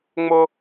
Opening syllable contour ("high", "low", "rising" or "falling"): high